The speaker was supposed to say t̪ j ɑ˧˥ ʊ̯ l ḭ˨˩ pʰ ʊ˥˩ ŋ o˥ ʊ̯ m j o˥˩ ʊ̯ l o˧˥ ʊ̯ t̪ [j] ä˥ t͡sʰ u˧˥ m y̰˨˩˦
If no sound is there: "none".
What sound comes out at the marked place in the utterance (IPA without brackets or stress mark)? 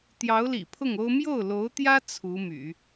j